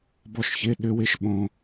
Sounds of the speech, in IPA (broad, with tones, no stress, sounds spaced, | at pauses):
b ɔ˧ ʃ ç ɪ˩˧˩ ɗ ʏ˧ w ɪ˧ ʃ ɓ õ˧